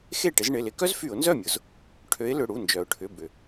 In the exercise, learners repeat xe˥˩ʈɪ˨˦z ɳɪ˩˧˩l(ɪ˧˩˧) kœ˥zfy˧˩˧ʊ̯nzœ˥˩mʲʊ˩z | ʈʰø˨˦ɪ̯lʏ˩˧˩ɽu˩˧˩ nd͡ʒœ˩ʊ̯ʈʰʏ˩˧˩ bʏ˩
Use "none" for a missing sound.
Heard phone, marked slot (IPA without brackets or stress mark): ɪ˧˩˧